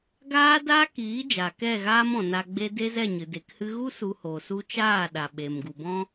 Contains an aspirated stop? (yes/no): no